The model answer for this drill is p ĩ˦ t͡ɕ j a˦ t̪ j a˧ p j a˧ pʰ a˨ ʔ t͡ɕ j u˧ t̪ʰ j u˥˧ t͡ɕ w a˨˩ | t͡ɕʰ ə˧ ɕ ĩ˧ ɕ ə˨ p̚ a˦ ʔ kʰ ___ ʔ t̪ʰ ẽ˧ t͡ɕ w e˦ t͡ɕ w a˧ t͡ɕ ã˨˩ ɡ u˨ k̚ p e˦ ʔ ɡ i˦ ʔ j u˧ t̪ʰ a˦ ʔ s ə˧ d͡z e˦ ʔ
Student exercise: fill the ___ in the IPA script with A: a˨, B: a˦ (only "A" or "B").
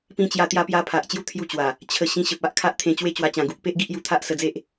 B